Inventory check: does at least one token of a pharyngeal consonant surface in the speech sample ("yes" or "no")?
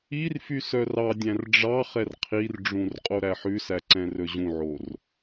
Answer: yes